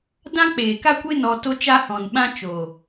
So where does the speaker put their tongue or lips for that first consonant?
tongue tip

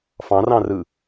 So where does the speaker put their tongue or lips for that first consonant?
lips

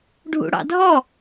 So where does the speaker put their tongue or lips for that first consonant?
retroflex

